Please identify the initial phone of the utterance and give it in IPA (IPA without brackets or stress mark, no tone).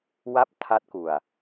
w